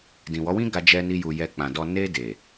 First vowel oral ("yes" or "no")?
no